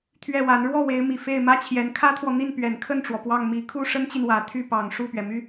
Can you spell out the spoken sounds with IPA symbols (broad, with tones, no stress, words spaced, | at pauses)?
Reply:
t̪ʰɥɛ˥˩wa˧˥n ɻwɔ˥˩ we˧˥ɪ̯mi˨˩ fe˥˩ɪ̯mä˥t͡ɕʰjɛ˧˥n kʰä˥t̪ʰwɔ˨ n̪i˥˩npɥɛ˨˩nkʰə˥˩nʈ͡ʂwɔ˩ pwɑ˥˩ŋmi˧˥ kʰu˥˩ʂə˥nt͡ɕi˨n wä˨˩ t̪ʰy˥˩pɑ˨˩ŋ ʂu˥˩pɥɛ˩my˥